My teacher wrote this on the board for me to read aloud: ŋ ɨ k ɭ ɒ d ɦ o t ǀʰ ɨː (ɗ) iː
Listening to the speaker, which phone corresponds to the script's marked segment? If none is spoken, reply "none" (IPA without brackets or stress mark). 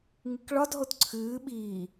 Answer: ɓ